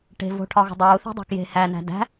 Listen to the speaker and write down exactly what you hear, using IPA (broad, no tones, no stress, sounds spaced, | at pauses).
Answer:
ʈ e̤ v o̤ ʈʰ ɒ ɣ ṳ dˤ uː θ i̤ dˤ e̤ k j e̤ h æ n æ̤ d æ̤